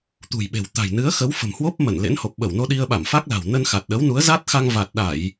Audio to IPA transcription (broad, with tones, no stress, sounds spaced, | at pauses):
t̪ ṳ˨˩ j ɓ e̤˨˩ w t̪ a̤˨˩ j n ɨ˨˦ ə̯ x ə˨˦ w f ə̤˨˩ m h w o˦˥ p̚ m ə˧˩ n l ḛ˧˥ n h o˨˩ p̚ ɓ ə˧˩ w n o˧ ɗ i˧ ə̯ ɓ a˧˩ m f a˦˥ k̚ l a̤˨˩ w n ə˧ n x a˨˩ t̚ ɗ ə˨˦ w n u˨˦ ə̯ z a˦˥ t̚ x a˧ ŋ v a˨˩ t̚ ɗ a˧˩˨ j